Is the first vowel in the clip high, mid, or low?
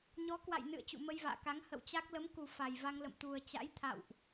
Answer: mid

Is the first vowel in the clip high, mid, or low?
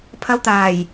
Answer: low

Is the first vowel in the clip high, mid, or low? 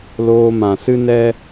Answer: mid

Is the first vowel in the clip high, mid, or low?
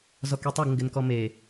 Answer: mid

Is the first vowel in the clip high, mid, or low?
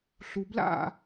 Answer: high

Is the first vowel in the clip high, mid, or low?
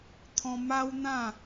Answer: mid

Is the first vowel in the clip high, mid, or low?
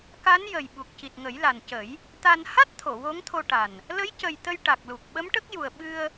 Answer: low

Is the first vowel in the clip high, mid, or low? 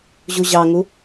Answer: high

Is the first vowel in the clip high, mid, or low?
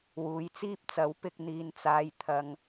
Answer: high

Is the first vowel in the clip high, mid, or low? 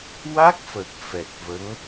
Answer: low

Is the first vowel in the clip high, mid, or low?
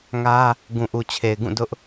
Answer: low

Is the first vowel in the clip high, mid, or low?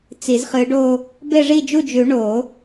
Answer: high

